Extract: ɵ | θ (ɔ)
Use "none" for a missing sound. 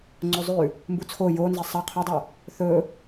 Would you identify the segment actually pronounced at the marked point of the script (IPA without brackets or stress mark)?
ɵ